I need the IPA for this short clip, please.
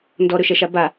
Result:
ndɔɾɵʃɛʃa ba

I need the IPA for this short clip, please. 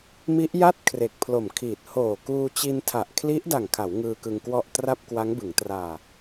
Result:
mi˦˥ʔja˥˩t̚ kʰre˨˩k̚pʰlo˨˩mkʰiː˨˩t̚ hoː˨˩kuː˧t͡ɕi˧ntʰa˨˩ʔ kʰli˦˥ʔ da˨˩ŋkʰa˩˦w ŋɯː˧kɯ˧ŋkwɔ˥˩ʔ tra˥˩p̚kwa˦˥ŋbɯ˩˦ŋ traː˨˩

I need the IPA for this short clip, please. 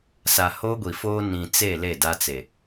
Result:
sa˨ho˦ɡʷi˨foː˦ nĩ˨t͡se˦˨ le˦˨ da˦t͡se˨

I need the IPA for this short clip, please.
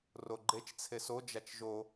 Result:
roɡ͡ǃet͡ʃ t͡sʰeso d͡ʒat͡ʃʒo

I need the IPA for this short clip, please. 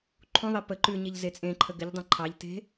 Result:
ǃʰũðˤe pə ǃʉɲeʎ zet͡sʼẽǃʰə ɡɘʎdˤẽ ǃʰɑʎte̤

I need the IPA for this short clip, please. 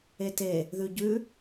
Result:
ete | ðʉɟʉ

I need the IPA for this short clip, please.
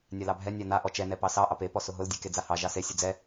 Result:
nʲalɑbʱɛ nʲana ʔɔt͡ʃɛ nɛpɑsɑ ʔɑpe pɔsʊɦʊl dʲeked͡zahɑ ʒɑse sʲʊd͡zɛ

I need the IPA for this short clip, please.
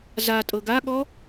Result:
za tʼɤɡaɠɔ

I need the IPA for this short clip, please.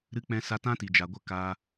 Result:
ɾɨ˦k͡pɛ̃˦sa˦ tã˦ti˨d͡ʒa˨ɡʷə˦˨ ka˧

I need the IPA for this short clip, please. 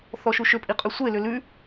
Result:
θɔʃuʃʏpʼi qʼʉsʷelʏ lʉ

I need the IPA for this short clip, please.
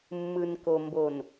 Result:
mːɯ˨nko˨ mbo˨n

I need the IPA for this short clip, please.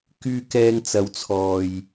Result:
kyː˧ kɛː˧ŋt͡sɐ˨˧wt͡sʰɔː˨j

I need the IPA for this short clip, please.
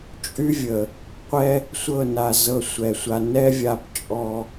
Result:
t͡ʃʼy˦vʲə˨ | qʷɛ˦ | sʷɤ˦˨na˨zɤ˧ sʷɛ˨sʷa˧ nɛ˦vʲa˧p t͡ʃʼɔ˦

